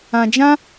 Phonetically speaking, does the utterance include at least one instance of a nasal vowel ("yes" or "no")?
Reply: yes